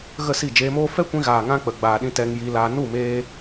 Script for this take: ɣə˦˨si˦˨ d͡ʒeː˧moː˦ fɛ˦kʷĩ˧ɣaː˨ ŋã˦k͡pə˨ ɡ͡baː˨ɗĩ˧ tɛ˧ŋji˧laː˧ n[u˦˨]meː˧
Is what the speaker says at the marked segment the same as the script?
yes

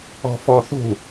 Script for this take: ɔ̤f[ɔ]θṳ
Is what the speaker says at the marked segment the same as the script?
yes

